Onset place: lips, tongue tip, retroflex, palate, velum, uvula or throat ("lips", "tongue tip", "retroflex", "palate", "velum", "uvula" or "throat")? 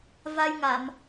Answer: lips